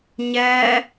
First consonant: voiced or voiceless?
voiced